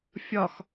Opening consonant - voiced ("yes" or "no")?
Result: no